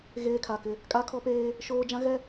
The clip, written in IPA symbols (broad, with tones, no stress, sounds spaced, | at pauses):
ɣ eː˦ kʰ a˨ k ɪ˦ | kʼ a˦ kʰ ɔ˦ p eː˦ | ʃ oː˦ d͡ʒ ã˦ ɣ ɛ˦